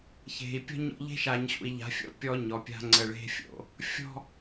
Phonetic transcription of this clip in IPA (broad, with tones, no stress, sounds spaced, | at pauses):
ç e̤˨ i̯ pʲ ɔ̤˦ ɲ ɔ̰˦ ʎ e̤˦ ʃ a˨ ɲ ɕ ṵ˨ i̯ ʎ a̤˨˦ fʲ ɔ̰˦ pʲ ɔ˦ ɲ ɔ˨ pʲ a̤˦ ŋ͡ǀ ə˨ ɭ e̤˦ fʲ o̰˨ | fʲ ɔ̤˦